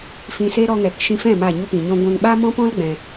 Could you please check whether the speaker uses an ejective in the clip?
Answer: no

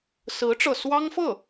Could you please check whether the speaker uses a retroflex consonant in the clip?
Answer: yes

